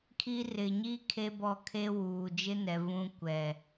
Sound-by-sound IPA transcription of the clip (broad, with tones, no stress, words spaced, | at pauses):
kʰi˦ rɪ˨ɲi˦ kʰe˦bɔ˦˨ kʰe˦wuː˨ d͡ʒɪ˦nɛ˨ vũ˦kʷɛ˨